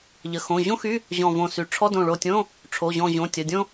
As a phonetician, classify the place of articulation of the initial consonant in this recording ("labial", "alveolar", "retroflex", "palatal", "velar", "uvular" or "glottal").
palatal